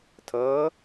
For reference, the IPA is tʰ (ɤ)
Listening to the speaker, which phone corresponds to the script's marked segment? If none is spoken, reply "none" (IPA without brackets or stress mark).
ɤ